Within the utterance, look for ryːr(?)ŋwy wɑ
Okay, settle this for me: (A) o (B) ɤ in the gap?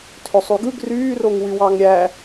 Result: A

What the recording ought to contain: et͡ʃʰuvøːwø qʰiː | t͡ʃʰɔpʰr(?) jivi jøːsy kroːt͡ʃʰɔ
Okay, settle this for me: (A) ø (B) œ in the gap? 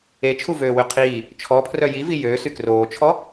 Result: B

